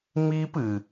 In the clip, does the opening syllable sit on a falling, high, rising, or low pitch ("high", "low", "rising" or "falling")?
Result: high